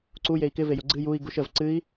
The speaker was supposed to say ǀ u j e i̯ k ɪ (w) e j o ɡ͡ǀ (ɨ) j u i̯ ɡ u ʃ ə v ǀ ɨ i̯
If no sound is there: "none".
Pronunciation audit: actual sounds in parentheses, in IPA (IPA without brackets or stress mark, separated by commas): v, ɨ